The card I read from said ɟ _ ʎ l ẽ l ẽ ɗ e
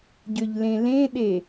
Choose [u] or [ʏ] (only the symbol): ʏ